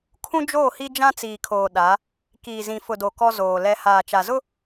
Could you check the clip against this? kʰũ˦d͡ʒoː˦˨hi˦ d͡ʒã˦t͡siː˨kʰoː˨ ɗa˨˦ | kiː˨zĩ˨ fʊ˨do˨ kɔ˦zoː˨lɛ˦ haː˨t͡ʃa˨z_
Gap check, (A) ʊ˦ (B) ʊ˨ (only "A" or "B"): A